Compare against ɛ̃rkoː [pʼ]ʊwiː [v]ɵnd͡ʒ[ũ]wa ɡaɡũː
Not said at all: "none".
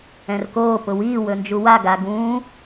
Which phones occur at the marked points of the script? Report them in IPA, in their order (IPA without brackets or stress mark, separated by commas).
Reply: p, w, u